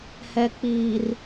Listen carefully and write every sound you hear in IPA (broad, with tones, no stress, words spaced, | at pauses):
hɛ˨k͡piː˨r